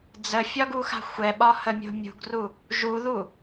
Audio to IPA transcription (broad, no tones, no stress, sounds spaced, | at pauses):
d͡z ə fʲ ɒ ɡ u x a̤ xʷ ɛ ɓ ɒ h ə mʲ o̤ mʲ ṳ ɡ r u | ʒ u ð u